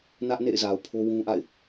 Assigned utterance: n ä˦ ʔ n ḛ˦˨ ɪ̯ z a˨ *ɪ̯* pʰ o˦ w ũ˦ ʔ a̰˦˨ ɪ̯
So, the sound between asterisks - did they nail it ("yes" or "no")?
no